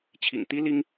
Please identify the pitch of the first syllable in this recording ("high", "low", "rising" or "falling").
low